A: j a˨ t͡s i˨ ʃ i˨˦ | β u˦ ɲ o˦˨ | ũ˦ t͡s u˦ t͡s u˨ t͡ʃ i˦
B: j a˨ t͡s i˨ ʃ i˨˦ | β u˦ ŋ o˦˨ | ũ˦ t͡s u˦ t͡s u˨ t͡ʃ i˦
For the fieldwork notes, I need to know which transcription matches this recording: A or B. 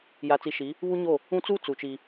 A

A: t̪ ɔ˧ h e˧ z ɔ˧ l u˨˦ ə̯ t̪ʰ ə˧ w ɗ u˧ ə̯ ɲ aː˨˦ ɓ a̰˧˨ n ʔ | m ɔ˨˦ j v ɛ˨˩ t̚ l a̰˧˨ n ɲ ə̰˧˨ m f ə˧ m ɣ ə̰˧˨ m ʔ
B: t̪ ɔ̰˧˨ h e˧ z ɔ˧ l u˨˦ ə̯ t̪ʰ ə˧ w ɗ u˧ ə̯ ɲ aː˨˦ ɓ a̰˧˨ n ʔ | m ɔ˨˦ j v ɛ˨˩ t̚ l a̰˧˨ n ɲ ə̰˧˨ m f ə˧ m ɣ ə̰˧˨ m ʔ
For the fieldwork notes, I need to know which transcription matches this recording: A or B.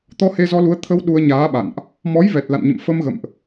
A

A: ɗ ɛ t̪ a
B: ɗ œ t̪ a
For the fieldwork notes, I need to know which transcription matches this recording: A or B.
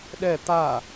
A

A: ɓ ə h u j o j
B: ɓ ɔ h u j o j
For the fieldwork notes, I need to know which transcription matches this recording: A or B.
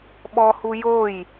B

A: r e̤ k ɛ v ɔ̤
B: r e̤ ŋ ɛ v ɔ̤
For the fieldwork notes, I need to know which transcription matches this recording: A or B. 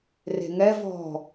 B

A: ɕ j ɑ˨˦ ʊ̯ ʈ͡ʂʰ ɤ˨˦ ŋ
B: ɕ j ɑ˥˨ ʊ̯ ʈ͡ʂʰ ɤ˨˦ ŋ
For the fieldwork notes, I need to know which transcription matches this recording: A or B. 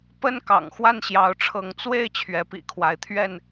A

